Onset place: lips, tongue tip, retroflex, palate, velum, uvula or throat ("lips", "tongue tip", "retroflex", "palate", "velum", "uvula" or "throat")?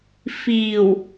lips